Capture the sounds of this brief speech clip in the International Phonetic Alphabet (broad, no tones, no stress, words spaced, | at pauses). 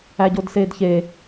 æɟodseːdçe